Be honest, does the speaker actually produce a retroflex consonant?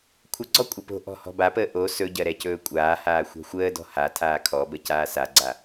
no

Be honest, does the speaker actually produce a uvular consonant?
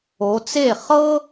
yes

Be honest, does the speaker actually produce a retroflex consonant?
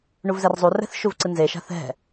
yes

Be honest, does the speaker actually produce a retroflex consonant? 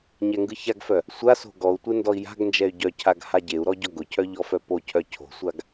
no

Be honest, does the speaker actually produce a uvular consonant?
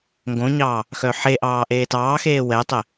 no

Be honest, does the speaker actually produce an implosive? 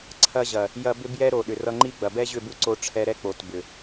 yes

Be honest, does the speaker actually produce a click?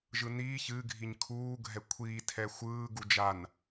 no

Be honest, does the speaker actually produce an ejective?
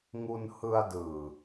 no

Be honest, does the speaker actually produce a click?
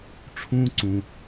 yes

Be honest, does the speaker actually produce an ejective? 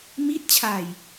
no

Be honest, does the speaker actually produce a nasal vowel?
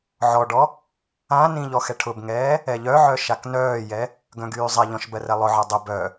yes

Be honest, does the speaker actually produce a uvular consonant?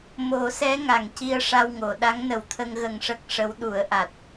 no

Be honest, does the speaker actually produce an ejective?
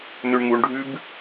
no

